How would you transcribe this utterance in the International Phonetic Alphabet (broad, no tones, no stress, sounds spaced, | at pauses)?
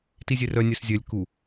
t i zʲ e r œ nʲ œ s zʲ œ lʲ k u